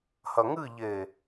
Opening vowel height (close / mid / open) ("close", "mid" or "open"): open